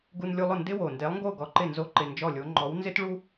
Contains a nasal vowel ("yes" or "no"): no